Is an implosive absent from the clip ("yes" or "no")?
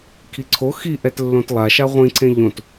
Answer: yes